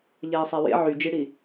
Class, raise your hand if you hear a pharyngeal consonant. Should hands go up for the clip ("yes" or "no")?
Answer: yes